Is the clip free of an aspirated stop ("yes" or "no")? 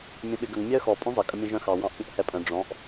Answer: yes